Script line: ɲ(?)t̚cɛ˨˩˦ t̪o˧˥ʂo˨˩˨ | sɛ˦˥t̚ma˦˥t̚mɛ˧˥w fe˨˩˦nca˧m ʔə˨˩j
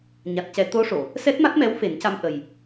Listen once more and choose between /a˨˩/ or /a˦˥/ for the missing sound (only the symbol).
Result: a˨˩